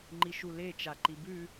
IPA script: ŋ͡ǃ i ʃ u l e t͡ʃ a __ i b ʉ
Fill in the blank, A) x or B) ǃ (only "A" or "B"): B